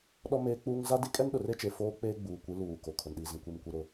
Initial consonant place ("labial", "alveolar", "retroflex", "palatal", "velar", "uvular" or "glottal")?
alveolar